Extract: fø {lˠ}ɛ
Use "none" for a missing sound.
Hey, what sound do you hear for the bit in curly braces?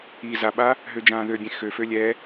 lʲ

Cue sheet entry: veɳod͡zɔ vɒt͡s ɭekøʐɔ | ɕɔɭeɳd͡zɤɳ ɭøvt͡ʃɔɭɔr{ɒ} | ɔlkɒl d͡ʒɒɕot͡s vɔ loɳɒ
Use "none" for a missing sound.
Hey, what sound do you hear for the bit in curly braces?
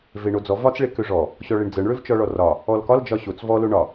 ɒ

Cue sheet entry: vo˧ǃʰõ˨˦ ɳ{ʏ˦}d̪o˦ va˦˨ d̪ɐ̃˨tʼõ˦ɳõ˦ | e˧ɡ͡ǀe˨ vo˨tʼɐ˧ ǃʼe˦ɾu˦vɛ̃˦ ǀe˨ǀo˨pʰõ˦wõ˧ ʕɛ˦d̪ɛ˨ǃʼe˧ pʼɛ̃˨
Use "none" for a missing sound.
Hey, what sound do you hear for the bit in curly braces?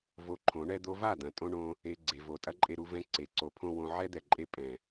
ɛ˦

